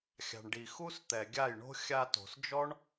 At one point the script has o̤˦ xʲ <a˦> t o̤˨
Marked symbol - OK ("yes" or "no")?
no